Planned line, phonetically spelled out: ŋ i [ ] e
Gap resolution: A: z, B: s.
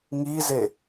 A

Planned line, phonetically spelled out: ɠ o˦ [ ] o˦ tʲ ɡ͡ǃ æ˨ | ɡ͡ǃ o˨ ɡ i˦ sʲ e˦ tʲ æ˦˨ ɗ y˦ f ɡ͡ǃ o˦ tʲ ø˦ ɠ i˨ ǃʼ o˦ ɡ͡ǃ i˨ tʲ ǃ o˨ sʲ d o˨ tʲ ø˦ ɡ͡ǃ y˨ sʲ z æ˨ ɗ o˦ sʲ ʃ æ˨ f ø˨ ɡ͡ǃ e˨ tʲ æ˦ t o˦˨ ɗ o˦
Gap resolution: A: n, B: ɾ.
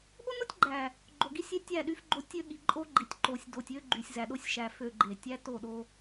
A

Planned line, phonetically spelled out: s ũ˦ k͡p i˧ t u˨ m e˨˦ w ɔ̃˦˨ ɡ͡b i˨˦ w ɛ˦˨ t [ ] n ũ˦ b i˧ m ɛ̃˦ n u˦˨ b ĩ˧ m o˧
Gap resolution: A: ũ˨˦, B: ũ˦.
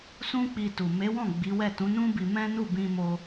A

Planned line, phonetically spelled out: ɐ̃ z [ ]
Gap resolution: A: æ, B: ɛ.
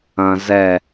B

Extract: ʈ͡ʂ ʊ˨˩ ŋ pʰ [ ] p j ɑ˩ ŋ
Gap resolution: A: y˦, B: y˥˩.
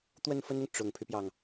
A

